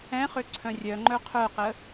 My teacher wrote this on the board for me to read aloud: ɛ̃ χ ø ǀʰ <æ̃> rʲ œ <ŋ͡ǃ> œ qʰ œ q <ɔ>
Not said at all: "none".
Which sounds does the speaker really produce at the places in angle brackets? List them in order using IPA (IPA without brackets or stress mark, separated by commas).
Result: œ̃, ŋ͡ǃ, ə